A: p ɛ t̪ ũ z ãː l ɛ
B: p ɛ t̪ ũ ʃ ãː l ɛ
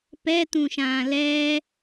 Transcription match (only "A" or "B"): B